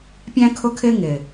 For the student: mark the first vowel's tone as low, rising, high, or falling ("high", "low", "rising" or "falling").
high